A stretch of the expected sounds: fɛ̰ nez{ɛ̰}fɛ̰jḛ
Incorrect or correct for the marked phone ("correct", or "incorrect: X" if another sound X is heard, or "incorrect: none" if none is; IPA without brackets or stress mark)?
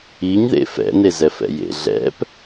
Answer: incorrect: ɛ